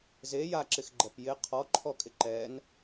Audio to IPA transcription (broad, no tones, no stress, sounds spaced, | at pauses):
z e j a ǁ ɪ x ɡ͡ǃ ɛ p j ɪ qʰ ɔ ǃʰ ɔ kʼ ɪ ǃ ɛ n